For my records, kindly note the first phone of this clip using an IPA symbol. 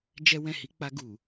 d͡ʒ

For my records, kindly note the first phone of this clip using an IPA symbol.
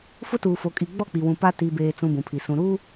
f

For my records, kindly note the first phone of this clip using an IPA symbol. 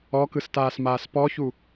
ɔ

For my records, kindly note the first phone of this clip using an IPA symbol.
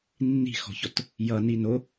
nː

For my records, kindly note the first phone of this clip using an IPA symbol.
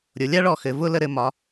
ɾʲ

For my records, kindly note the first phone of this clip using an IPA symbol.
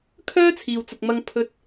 kʰ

